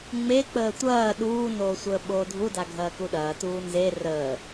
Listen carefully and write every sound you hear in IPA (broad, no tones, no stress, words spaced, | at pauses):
ŋ͡me k͡pəːtʷɐː ɗuːnoː sʷəːɓoːdʱuda ɡʱɐːkuɗɐː tuːnze rəː